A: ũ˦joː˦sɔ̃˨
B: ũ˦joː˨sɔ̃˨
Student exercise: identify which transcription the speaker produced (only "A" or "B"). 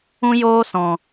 A